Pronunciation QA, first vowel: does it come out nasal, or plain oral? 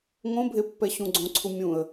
nasal